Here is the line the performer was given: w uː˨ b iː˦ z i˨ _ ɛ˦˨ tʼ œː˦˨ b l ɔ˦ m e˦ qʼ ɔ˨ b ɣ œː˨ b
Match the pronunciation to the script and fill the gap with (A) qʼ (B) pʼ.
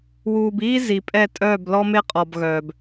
B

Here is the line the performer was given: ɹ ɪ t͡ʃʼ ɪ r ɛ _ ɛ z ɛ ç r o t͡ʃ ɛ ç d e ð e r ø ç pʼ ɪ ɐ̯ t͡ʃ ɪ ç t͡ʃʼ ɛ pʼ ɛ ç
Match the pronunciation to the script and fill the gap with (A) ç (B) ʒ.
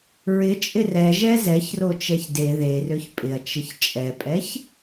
B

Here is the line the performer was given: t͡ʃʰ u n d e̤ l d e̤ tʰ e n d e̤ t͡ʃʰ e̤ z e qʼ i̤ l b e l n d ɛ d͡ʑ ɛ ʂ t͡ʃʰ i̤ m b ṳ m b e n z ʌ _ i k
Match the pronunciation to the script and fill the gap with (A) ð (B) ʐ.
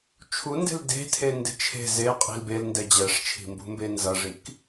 B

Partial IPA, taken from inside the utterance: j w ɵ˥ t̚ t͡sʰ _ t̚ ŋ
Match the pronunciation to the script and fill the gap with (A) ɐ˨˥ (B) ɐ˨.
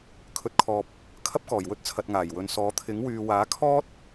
B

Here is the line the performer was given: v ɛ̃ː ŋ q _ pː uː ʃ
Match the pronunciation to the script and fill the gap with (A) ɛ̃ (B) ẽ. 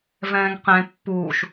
B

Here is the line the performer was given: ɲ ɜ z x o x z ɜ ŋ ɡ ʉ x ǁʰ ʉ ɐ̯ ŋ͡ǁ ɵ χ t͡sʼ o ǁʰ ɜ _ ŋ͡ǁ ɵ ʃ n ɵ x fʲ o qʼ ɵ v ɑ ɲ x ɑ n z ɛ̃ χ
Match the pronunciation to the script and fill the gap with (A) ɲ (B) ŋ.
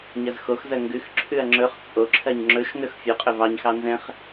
A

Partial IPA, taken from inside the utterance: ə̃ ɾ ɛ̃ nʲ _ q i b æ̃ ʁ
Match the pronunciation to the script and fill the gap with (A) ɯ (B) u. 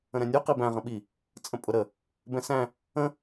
B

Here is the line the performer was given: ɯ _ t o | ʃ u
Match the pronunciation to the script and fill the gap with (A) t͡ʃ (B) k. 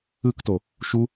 B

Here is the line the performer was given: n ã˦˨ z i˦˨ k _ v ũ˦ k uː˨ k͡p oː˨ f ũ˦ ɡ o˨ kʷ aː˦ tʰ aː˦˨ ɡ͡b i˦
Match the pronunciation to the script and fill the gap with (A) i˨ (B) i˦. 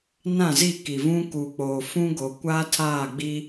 A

